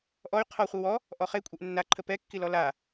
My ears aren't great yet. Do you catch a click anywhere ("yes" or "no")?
yes